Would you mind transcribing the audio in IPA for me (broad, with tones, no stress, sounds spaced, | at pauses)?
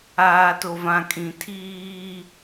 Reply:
aː˨ t o˨ v ã˨ kʼ ĩ˨ tʰ iː˦